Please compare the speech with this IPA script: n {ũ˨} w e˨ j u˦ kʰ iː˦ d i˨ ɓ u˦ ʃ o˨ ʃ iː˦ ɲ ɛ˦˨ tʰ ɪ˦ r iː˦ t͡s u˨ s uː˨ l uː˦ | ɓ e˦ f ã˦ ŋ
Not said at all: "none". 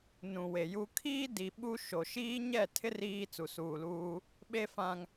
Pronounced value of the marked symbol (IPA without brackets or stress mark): ũ˨